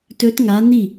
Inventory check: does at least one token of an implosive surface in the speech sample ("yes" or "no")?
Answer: no